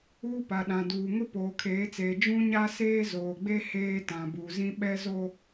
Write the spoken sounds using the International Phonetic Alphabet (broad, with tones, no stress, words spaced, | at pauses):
uː˦pa˨ɗã˨duː˨ ŋʊ˦poː˨kʰeː˨˦t͡seː˨ d͡ʒũ˦ɲa˦ seː˦zoː˨ɡ͡be˦ heː˦tã˨bu˨zĩ˦ ɓɛ˦zo˦